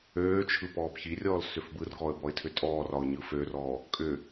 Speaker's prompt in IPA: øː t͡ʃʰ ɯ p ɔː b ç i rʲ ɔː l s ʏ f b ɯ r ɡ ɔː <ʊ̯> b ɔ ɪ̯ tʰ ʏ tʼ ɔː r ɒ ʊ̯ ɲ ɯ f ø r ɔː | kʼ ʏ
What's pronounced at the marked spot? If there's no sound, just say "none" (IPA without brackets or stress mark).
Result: ə̯